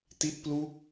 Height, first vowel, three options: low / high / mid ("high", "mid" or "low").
high